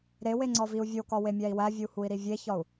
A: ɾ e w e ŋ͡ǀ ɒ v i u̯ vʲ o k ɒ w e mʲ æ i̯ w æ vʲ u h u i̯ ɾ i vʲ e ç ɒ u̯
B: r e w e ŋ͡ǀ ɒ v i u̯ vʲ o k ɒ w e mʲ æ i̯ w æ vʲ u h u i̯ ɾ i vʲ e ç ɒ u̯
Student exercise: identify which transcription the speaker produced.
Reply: A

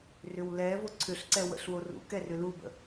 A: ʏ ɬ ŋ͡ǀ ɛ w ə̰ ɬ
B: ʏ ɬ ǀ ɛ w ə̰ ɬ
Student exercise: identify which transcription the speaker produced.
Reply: B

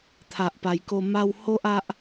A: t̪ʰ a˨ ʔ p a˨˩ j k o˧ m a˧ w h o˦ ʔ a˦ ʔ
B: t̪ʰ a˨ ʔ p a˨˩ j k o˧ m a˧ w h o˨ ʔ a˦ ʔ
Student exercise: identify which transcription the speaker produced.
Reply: A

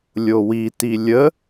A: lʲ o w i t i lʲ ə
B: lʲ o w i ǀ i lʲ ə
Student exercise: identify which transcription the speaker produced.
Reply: A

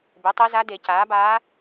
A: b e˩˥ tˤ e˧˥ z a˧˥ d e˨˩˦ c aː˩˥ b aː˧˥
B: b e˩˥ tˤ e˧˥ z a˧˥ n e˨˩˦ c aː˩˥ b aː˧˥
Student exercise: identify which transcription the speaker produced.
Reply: A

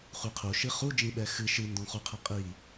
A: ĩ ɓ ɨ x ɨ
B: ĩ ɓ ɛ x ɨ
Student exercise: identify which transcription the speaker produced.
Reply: B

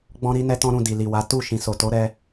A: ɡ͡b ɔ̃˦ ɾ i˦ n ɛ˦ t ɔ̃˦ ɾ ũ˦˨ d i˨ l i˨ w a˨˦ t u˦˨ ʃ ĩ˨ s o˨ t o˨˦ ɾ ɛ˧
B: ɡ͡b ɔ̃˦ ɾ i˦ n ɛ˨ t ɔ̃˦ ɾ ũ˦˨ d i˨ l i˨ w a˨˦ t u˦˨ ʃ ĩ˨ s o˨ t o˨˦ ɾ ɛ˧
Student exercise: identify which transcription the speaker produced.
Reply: A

